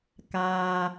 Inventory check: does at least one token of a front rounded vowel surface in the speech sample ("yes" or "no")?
no